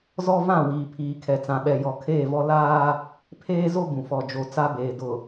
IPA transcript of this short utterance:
z ɔ˦ v ã˦˨ w iː˨ pʰ iː˨ kʰ ɛ˨ t͡s ã˨ ɓ ɛ˨ j ɔ˨ kʰ eː˦˨ v ɔ˦ l aː˦ | pʰ eː˦ z o˦ b ũ˨ f ɔ˨ d͡ʒ o˨ t͡s a˦ b eː˨ d ʊ˨

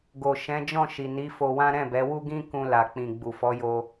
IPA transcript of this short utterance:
ɡ o˨ ʃ ɛ̃˨˦ d͡ʒ ɔ̃˦˨ ʃ i˨ n i˨˦ f o˧ w ã˦ ɾ ɛ̃˦˨ b ɛ˨˦ w u˦ ɡ ĩ˦ k ũ˧ l a˨ k͡p ĩ˨ ɡ͡b u˨ f ɔ˨˦ j o˧

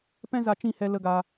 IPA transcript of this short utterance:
p ɛ̃˦ z a˧ t͡ʃ ĩ˦˨ h ɛ˧ l ə˧ ɡ a˧

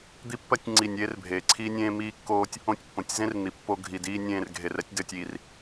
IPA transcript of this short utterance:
d̪ i˦ pː ɜ˦ tʲ ŋ͡ǀ i˦˨ nʲ eː˦ r bʱ eː˨ ǀʰ iː˦ nʲ ẽː˦ m iː˦ kː oː˦ tʲ | õ˦ tʲ pː õ˨ tʲ z ẽ˦ r n̪ i˨ pː o˦ ɡʱ i˨ d iː˦ nʲ ẽː˦˨ r ɡʱ e˨ r ɛ˦ tʲ d ɘː˨ tʲ iː˨ r

